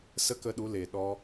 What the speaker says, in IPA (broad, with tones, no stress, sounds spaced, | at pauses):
s ə˦ k ə˧ ɗ u˨˦ l eː˨ ɗ ɔ˦